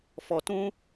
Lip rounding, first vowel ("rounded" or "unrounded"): rounded